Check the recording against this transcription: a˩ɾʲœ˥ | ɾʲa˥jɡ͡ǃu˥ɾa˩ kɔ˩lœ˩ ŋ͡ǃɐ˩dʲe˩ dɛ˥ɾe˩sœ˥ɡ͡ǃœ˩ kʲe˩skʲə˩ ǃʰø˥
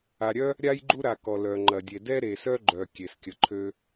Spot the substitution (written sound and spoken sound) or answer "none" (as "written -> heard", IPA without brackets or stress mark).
none